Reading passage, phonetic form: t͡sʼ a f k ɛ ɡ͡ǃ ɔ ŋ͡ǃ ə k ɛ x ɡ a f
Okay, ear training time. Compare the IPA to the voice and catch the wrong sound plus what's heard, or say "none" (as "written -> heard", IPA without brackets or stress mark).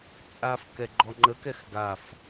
none